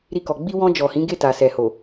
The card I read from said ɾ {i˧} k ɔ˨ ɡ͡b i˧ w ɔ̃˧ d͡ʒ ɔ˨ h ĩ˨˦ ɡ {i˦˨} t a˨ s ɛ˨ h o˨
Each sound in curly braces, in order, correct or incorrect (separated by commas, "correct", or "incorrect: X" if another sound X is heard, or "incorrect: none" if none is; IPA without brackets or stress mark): correct, incorrect: e˦˨